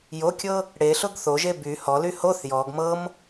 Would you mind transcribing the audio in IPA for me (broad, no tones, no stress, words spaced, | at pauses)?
jokʲɤ | ɽeɬʊɡ θoʒe by hɔly hoθ jɔɡ mɤm